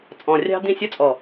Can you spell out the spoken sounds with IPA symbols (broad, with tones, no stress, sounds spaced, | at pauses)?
t͡sʼ ɔ̃˨ rʲ ɑ̤˧ d̪ ĩ˦˨ sʲ ɔ˦ t͡sʼ ɔ˨